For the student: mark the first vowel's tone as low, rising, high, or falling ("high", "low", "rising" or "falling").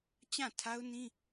falling